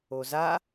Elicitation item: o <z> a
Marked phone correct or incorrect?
correct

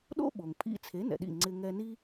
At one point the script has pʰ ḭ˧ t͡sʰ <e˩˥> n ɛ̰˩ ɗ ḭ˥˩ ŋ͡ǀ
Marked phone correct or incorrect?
correct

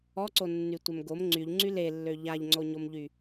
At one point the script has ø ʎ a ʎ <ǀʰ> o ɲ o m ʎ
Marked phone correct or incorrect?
incorrect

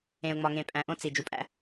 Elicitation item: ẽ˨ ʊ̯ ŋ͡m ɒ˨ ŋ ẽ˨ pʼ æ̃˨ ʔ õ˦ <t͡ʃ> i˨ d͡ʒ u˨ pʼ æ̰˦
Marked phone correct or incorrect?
incorrect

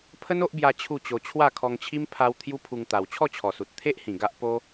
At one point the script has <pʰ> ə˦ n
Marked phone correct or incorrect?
correct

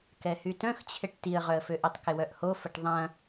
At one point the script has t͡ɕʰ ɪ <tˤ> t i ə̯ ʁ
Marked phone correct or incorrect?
incorrect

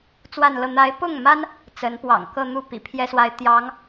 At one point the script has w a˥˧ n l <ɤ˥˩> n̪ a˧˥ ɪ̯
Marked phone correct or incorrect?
correct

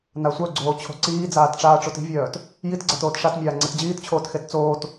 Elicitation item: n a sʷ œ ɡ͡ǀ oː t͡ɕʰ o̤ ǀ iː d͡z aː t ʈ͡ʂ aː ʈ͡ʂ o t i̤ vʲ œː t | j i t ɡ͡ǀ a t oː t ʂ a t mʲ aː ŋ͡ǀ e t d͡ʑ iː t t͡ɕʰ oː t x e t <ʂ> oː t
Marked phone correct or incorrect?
incorrect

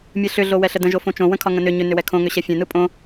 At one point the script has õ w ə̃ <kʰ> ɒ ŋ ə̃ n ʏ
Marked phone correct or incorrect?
correct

